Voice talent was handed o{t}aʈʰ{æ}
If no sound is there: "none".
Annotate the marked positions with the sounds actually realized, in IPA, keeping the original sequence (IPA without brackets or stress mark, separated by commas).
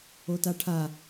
t, a